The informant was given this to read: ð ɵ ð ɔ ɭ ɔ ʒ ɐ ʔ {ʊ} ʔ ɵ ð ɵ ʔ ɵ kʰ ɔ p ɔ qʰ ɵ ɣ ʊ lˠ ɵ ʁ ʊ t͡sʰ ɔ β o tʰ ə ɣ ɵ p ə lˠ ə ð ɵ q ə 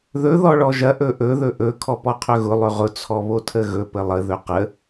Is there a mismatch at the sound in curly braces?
yes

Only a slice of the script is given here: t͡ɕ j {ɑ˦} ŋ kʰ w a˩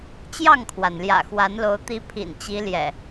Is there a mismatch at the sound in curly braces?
yes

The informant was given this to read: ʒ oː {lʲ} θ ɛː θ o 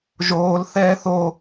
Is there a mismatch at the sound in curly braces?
yes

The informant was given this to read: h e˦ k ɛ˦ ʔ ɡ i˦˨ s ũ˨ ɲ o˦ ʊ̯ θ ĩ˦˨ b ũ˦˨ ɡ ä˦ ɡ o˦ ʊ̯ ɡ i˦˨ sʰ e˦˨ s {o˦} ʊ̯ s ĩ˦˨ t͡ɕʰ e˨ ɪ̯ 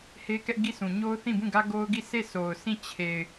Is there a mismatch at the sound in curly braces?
yes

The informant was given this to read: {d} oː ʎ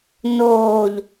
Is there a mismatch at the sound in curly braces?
yes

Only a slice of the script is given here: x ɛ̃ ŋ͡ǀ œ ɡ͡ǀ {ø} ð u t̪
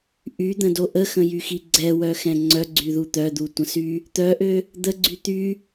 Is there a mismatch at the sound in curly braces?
yes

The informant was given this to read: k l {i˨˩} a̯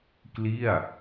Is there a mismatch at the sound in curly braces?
yes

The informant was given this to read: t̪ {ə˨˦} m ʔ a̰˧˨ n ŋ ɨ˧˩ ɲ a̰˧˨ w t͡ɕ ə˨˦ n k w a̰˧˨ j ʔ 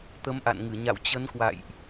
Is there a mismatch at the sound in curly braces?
no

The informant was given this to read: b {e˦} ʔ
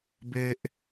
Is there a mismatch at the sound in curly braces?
no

